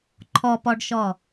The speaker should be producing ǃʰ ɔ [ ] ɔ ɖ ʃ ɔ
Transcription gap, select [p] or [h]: p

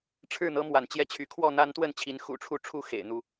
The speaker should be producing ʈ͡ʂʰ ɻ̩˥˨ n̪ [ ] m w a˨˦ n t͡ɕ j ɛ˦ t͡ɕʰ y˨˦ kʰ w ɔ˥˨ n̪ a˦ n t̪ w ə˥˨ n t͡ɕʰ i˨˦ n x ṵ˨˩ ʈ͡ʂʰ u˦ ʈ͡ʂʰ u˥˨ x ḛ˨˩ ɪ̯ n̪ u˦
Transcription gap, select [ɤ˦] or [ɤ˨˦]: ɤ˦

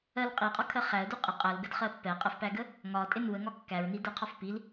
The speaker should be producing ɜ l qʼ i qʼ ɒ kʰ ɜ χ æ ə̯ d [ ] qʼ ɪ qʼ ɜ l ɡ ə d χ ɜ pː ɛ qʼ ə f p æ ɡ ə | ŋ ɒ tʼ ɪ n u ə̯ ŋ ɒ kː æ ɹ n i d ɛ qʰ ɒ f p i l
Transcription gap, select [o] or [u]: u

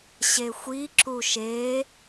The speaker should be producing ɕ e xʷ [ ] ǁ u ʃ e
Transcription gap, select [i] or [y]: i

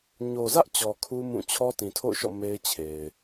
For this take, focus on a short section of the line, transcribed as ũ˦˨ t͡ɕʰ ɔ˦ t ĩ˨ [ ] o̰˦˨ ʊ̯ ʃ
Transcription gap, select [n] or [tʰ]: tʰ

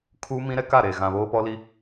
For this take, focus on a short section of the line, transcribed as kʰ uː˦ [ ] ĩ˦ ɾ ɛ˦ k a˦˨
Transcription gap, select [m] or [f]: m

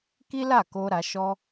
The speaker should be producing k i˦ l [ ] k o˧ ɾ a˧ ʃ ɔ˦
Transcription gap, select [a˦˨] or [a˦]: a˦˨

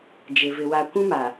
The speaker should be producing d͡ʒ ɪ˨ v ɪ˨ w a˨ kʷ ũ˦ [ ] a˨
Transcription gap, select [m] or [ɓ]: m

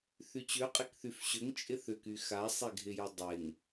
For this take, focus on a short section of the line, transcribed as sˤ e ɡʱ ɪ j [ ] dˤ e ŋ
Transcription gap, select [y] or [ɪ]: ɪ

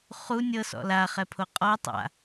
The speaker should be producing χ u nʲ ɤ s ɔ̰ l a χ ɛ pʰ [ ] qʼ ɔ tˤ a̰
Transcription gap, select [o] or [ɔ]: o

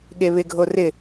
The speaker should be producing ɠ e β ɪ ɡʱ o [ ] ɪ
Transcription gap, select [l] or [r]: r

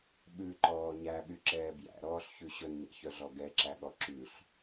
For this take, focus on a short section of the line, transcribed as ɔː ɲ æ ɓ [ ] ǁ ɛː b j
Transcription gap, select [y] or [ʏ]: y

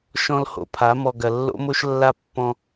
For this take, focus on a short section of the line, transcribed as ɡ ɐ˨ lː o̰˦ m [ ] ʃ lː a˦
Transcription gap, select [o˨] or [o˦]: o˦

